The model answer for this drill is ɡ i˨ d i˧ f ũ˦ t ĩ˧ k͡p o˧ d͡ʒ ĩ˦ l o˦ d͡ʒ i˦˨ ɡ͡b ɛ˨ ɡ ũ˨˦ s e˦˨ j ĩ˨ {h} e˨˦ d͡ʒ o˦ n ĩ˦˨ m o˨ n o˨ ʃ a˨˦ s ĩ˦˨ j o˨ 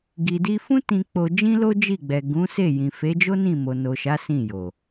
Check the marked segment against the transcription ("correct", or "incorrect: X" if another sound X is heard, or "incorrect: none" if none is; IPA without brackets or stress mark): incorrect: f